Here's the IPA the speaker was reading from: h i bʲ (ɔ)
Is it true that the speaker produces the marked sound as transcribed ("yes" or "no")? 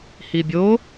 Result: no